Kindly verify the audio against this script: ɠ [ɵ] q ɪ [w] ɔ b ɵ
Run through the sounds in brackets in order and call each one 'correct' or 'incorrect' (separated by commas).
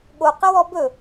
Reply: incorrect, correct